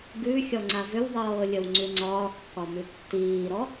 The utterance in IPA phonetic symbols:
ɡ ʉ xʲ ɔ ŋ͡ǀ a v ʏ w ðˤ ɤː lʲ ə w ŋ͡ǀ ʉ ŋ͡ǀ ɒː kː ɒ m ʉ tː iː ɾ ɔ

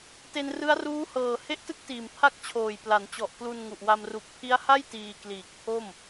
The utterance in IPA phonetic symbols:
t e˧ n r ɯ˦˥ a̯ r uː˦˥ h ɤː˨˩ h e˥˩ ʔ t ɯ˥˩ k̚ t iː˨˩ m pʰ a˥˩ k̚ t͡ɕʰ oː˨˩ j p l a˩˦ n t͡ɕ ɔ˨˩ ʔ k l u˧ n ŋ u˨˩ ʔ w a˧ m r u˨˩ k̚ pʰ i˦˥ a̯ h a˥˩ j t iː˧ k l iː˨˩ k̚ pʰ o˥˩ m

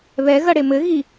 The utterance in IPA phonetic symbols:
β ɛ ɣ ɐ ɽ e m ɘ ɣ i

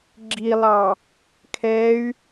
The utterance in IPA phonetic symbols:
ɡ͡ǁ i lˠ ɑ | kʰ ɛ y̯

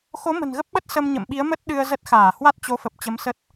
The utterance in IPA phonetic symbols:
x o˨˦ m ə̤˨˩ n ɣ ə˦˥ p̚ ɓ ə˦˥ t̚ s ə˧ m ɲ ə̰˧˨ m ɓ i˨˦ ə̯ m ə˦˥ t̚ ɗ ɨ˧ ə̯ z ə˦˥ t̚ x aː˧˩ h w a˦˥ t̚ t͡ɕ o˨˦ f ə˨˩ p̚ t͡ɕ ə˨˦ m s ə˦˥ t̚

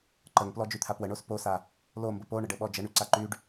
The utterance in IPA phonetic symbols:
ǃ ə ŋ p l ɔ d͡ʒ y t̪ʰ a p w ə ɳ o s p o s a | l o m b ə p o ɳ ə ɖ ə ɓ ɔ d͡ʒ ə ɳ y ǀ a ǃ y ɖ

